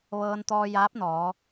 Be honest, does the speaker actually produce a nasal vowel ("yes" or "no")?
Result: no